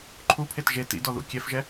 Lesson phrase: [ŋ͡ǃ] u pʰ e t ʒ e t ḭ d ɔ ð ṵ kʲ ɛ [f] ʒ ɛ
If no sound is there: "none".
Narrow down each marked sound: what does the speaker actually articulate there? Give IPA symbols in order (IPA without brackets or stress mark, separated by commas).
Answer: ǃʰ, f